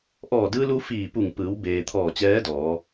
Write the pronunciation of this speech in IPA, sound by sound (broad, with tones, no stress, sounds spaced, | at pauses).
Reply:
ʔ ɔː˧˩ d ɯː˧ l u˧ f iː˧˩ p u˧˩ ŋ p ɯː˩˧ w b eː˩ t̪ʰ ɔː˧˩ t͡ɕ ɛː˧˥ d ɔː˩˧